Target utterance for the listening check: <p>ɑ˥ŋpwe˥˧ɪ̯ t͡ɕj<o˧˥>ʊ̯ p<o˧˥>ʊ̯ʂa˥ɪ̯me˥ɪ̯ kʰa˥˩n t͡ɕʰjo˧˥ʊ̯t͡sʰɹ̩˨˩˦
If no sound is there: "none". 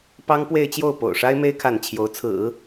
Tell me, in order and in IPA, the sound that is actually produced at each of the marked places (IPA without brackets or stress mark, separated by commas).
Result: p, o˥˩, o̰˨˩